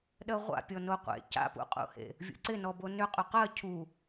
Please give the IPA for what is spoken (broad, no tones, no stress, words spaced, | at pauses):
ɗɜʁʷa̰pʲɔ noqʷḛ ca̰pṵqʼṵhḛ | vʲṵǀɪnɔbo nʏ qʼʏqɜ cʰu